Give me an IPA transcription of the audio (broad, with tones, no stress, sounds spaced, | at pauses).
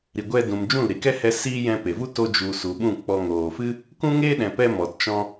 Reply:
ɾ i˨ ɡʷ ɛ˧ d ũ˨ m d͡ʒ ũ˦˨ l ɾ i˧ k ɛ˦ h ɛ˦ s iː˦ j ɛ̃˧ p e˨ v u˦ t o˦ d͡ʒ u˨ s u˨ ɓ ũ˦˨ k͡p ɔ˧ ŋ oː˨ f ɨ˦ | k ũ˦ ŋ eː˦ ɗ ɛ̃˨ p ɛ˧ m ɔ˨ t t͡ʃ ɔ̃˧